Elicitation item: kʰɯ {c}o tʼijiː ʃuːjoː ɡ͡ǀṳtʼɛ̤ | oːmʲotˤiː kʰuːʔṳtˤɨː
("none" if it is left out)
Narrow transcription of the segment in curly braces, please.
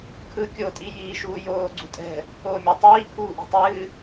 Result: kʲ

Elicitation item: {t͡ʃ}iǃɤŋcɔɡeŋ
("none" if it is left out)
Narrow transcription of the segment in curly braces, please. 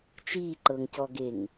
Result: t͡ʃ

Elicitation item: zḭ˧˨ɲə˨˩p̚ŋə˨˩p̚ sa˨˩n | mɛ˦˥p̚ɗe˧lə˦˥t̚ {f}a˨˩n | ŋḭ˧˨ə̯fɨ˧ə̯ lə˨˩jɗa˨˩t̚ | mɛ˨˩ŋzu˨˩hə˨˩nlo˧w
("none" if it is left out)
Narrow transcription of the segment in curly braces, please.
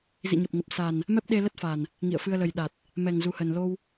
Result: f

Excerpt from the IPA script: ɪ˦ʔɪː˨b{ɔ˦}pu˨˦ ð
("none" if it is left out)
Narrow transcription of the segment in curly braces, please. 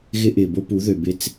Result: o˦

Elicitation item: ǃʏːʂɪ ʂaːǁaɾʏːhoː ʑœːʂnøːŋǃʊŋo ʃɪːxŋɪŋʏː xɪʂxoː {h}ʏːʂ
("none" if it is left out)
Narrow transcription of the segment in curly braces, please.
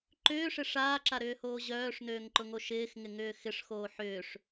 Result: ħ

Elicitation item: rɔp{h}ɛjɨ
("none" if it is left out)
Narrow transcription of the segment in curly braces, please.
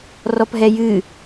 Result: ɦ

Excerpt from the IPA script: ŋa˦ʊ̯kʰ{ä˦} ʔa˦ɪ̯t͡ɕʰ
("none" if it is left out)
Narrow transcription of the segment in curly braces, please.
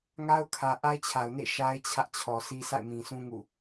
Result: ä˨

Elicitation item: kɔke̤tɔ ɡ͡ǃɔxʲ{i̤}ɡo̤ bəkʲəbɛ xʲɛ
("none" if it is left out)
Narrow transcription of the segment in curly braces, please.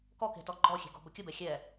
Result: e̤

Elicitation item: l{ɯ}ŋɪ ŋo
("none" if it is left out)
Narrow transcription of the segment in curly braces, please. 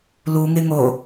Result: u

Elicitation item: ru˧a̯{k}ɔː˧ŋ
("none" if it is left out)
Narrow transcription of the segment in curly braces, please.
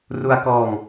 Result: k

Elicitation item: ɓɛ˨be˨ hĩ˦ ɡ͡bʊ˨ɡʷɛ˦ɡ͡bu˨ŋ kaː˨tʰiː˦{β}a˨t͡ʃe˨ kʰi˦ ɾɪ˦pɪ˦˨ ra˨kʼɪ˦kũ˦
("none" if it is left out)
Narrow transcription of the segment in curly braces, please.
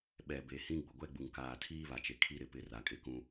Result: β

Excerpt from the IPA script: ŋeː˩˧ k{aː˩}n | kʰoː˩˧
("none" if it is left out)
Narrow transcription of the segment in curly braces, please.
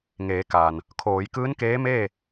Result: aː˩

